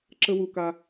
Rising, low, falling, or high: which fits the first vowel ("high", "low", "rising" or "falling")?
high